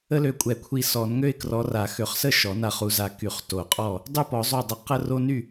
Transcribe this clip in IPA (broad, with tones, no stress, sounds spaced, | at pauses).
ə˥ l ø˧˩ kʷʼ ɛ˨˩˦ kʷʰ i˧˩ s ɔ˨˩˦ n ŋ ø˥ ɪ̯ k r ɔ˨˦ r a˨˩˦ x ø˨˩˦ χ s ə˥˩ ʃ ɔ˨˩˦ n a˧˩ χ u˨˦ z a˧˩ k y˨˩˦ χ t o˨˩˦ qʼ ɔ˥˩ | dˤ y˥˩ p ɔ˨˩˦ zˤ o˧˩ dˤ ə˨˦ q ə˥ r o˥ n y˥˩